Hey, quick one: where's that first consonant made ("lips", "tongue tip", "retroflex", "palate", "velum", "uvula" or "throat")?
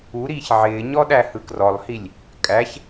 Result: tongue tip